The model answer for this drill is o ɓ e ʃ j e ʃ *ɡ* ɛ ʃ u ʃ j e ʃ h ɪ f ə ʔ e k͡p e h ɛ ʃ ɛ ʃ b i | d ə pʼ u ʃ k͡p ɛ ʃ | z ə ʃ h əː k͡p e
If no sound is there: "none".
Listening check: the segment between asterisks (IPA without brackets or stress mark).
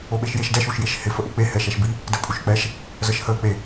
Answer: d